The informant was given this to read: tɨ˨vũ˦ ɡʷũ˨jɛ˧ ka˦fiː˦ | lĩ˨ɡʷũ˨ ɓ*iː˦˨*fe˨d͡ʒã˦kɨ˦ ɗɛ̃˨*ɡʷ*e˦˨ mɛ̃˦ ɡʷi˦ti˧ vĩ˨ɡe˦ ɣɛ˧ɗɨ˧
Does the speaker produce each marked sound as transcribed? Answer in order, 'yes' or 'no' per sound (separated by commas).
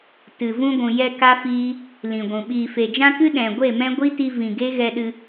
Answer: no, yes